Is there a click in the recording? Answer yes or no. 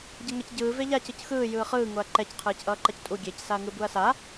yes